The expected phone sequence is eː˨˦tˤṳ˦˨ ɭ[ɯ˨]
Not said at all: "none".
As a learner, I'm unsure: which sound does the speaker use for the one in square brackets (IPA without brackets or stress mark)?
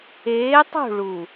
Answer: u˨